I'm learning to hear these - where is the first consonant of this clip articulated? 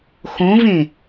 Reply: velum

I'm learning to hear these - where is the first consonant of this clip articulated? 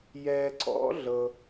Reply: palate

